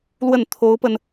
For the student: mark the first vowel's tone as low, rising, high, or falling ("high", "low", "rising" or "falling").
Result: falling